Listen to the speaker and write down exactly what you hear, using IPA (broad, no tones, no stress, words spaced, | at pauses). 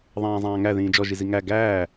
ðˤãːzˤãːŋæ ðĩːd͡ʒɔʒizi ŋæ ɡæː